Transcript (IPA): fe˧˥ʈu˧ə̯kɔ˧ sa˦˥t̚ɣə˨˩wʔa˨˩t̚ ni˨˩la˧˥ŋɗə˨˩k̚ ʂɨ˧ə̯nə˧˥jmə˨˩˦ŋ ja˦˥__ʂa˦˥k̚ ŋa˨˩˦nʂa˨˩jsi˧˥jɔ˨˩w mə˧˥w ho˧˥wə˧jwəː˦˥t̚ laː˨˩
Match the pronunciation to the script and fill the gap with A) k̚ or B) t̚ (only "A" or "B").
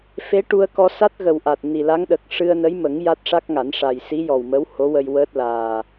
B